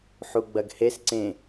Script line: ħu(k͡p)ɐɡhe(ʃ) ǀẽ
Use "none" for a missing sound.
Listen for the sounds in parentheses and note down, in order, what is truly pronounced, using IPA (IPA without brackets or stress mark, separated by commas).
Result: ɡ͡b, s